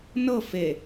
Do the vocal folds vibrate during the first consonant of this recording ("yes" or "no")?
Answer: yes